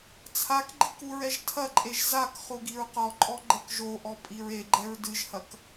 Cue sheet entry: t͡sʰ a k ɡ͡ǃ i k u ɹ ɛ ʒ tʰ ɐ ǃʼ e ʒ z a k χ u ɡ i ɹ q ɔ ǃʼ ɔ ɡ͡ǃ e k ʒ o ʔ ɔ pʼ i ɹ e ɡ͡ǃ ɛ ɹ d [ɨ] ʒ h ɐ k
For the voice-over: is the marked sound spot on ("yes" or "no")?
yes